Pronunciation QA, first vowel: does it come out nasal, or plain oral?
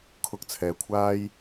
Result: oral